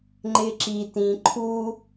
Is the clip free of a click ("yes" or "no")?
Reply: no